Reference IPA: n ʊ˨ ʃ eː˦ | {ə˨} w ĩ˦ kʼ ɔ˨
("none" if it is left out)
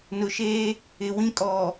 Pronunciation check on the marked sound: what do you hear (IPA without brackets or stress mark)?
ɪ˨